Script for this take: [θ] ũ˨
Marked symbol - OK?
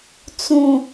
no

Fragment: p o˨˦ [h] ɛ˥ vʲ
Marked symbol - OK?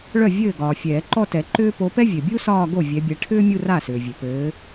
no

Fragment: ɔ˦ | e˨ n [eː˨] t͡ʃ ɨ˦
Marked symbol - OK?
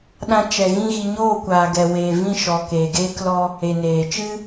yes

